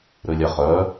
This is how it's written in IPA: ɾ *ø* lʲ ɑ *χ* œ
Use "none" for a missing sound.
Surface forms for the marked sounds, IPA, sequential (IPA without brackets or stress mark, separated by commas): ø, χ